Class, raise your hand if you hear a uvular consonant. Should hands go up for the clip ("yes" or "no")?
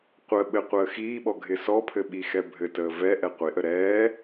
yes